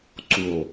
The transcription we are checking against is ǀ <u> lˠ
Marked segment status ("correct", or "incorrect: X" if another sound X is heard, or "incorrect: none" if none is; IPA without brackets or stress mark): correct